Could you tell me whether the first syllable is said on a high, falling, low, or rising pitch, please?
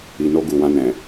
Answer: low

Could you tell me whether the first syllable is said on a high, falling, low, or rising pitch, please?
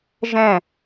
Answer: falling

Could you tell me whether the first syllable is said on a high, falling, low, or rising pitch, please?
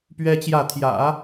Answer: high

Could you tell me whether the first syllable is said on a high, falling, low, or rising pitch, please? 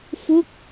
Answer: falling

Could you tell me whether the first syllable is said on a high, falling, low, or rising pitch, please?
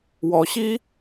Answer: rising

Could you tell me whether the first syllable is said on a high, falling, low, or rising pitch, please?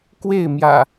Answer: falling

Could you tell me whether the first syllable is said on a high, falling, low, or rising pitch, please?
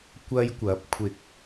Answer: high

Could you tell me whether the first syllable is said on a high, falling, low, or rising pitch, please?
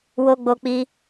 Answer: high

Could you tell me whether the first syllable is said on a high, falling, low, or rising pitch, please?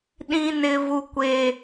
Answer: high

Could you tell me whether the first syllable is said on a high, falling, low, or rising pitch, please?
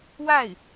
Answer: falling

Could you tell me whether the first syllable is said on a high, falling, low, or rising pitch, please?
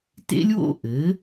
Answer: high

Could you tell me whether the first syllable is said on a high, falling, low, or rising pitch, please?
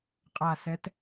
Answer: low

